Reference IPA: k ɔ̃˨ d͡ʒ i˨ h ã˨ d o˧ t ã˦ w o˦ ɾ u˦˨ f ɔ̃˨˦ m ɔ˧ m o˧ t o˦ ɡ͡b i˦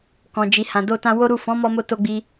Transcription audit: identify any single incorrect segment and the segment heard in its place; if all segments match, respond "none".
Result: none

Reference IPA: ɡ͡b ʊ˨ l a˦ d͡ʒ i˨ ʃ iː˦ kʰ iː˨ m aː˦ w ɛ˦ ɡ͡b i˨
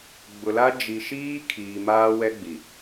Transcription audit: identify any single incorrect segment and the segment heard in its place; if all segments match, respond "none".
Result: none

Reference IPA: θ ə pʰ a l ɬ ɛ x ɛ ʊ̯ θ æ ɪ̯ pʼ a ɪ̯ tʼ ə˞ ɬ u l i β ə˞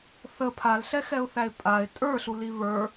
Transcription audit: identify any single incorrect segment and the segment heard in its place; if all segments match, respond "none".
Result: none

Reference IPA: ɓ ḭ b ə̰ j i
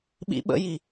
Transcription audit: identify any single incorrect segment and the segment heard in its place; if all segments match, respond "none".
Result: b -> ɓ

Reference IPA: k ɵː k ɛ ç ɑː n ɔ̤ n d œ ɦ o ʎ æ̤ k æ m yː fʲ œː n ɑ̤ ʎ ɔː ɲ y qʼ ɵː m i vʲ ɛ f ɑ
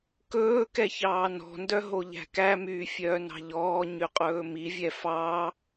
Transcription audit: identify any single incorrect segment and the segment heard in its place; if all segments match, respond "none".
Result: none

